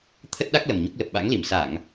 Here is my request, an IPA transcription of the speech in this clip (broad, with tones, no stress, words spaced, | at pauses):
t̪ʰə˦˥t̚ɗa˦˥k̚ lə˨˩mɲo˦˥k̚lə˨˩p̚ ɓa̰˧˥ŋli˧˩m sa˧˩˨ŋ